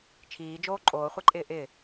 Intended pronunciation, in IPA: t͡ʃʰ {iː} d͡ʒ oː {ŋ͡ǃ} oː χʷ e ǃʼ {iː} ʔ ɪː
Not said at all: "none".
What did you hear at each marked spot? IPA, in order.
iː, ǃʼ, ɪː

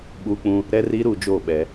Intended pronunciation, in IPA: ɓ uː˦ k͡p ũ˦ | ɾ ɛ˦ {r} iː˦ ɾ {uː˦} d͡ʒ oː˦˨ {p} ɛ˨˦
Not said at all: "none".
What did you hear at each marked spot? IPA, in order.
r, uː˨, ɓ

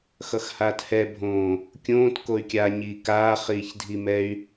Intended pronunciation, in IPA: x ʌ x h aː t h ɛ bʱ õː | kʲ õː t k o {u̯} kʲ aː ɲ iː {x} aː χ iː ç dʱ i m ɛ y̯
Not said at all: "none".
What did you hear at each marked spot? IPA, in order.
y̯, k

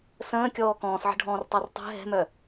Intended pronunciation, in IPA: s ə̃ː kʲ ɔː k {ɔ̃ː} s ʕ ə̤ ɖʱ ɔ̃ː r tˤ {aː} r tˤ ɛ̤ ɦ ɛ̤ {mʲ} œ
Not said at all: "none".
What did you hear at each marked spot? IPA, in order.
ɔ̃ː, a, m

